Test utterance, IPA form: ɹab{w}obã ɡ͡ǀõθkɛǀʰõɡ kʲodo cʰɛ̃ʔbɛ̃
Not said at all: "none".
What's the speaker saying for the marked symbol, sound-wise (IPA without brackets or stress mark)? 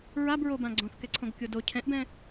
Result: ɹ